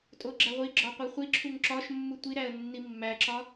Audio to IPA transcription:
tʼ o ɡ͡ǁ æ ʁʷ i ɡ͡ǁ ɒ qʷ i χʷ i ǁʰ u ŋ ǁ ɒ ʃ mː u tʷ i ɾ æ ə̯ nː i mː æ ǁ ɒ

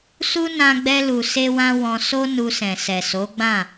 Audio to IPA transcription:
s u˦ n ã˧ ɡ͡b ɛ˧ l u˨ s e˧ w ã˧ w ɔ̃˧ s o˦ n u˧ s ɛ̃˨ s ɛ˨ s o˨˦ ɡ͡b ã˦˨

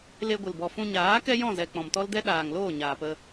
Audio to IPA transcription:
l e˧ ɡʷ ɨ˨ l b ɔ˨ f ũ˧ ɲ aː˨˦ k ɛ˦ j ɔ̃˦˨ z ɛ˨ k͡p ɔ̃˨ m t ɔ˦ l d ɛ˦ ɗ aː˨ ŋ l oː˦˨ ɲ aː˨ p ə˧

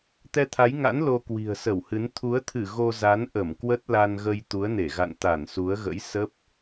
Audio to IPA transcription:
t̪ ɛ˧ t̪ʰ a˨˦ j ŋ a̰˧˥ n l o˧ k w i̤˨˩ ə̯ s ə˧˩ w h ɨ˨˦ n t̪ʰ u˨˦ ə̯ t̪ʰ ɨ˧˩ ɣ o˧ z a˨˦ n ʔ ə˧˩ m k w ə˦˥ t̚ l a˧ n ɣ ə˧ j t̪ u˨˦ ə̯ n e˧˩ ɣ a̰˧˨ n t̪ a˧˩ n s u˨˦ ə̯ ɣ ə̰˧˥ j s ə˦˥ p̚

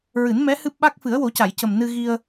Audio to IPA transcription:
ɹ ɨ˨˩˦ n m ɛ˧˥ h ɨ˦˥ p̚ ɓ a˦˥ k̚ f ɨ˨˩˦ ə̯ w o˨˩˦ c a˨˩˨ j c ə˨˩ m n ɨ˧ ɣ i˧ ə̯

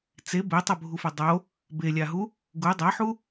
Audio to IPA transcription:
t͡s e b e tˤ o bʱ u f ʊ dˤ o | b e lʲ a ɦ u | ɡ u dˤ a ħ u

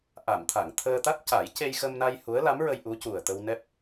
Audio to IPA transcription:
ʔ a˨˩˨ m t̪ʰ a˨˩˨ ŋ t̪ʰ əː˧ t̪ a˦˥ t̚ c a˨˩˦ j c e˧ j x ə˧ m n a˧ j h u˧˥ ə̯ l a˧˥ m ɹ ə˧ j ʔ u˧˥ c u˨˩ ə̯ t̪ ə˧ w n ɛ˦˥ p̚

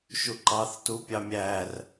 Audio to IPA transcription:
ʃ u ǃ ɑ θ t u pʲ ɑ mʲ æ r

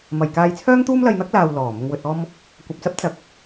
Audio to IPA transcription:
m ɐ˨ j k aː˧ j t͡sʰ œː˥ ŋ t̪ uː˥ m l ɐ˧ j n̪ ɐ˥ k̚ l aː˨ w l ɔː˨˩ m ʊ˧ ŋ w ɵ˧ t̚ ɔː˥ m | kʷ ɐ˨ p̚ t͡s ɐ˥ p̚ t͡s ɐ˨ k̚

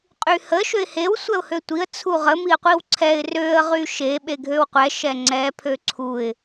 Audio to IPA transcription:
qʼ y h ə ʃ ø ɪ̯ h e w sʷ ɛ ʊ̯ h ø tʷ i ə̯ t͡sʰ u ʁ ə m i ə̯ qʷ i w ǀʰ ɛ ɪ̯ r ø ə̯ ʁ y ʃ e ɓ e ɡʱ ø w qʷ ɛ ʃ ɛ ŋ͡ǀ ɛ pʰ ø ǀʰ u ɪ̯

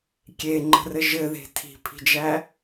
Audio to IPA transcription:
kʲ e ŋ͡ǃ ə̤ r ɘ ʒ ɘ ð e̤ tʰ i̤ pʰ i̤ d͡ʒ æ

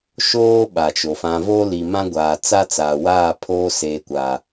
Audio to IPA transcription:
ʃ oː˦ ɓ a˨ t͡ʃ o˨ f ã˨ v oː˦ l i˨ m ã˦ ɡʷ aː˨ t͡s a˦ t͡s aː˨ w aː˦˨ pʰ oː˦ s eː˨ kʷ aː˨

